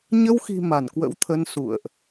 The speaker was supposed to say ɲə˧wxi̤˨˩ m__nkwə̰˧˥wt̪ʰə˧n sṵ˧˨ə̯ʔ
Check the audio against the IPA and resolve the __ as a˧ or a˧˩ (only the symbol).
a˧˩